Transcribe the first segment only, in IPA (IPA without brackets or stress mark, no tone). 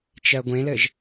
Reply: t͡ʃ